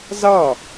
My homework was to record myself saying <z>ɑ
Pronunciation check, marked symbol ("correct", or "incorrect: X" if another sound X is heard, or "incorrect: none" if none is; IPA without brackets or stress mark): correct